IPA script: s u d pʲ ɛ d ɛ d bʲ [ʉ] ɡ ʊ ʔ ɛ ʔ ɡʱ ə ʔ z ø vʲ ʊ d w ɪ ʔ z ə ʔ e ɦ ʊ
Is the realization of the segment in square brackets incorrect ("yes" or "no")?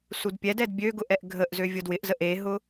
yes